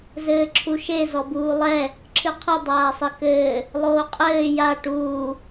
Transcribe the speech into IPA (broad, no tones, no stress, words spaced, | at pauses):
zɘːǁʰuʃe zɔbuːlˠɛ | ǁʰɨqʰɨ dˤaːsˤɘkɘː | lˠoːqʼɘː ja ʈuː